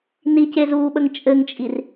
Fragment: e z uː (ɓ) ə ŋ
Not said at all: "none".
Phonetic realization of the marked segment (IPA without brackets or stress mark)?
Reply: ɓ